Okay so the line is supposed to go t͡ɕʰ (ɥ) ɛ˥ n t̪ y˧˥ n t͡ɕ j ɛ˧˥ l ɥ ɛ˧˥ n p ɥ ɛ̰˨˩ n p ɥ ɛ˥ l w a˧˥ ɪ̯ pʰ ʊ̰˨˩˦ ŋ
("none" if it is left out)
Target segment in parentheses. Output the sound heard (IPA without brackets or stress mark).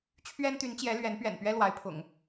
ɥ